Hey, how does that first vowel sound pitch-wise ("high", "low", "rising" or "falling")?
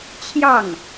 falling